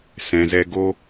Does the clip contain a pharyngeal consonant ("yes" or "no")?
no